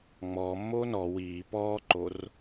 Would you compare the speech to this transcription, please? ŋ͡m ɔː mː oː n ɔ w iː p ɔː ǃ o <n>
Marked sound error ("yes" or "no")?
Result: yes